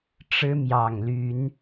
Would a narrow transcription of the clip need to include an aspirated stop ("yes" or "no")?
no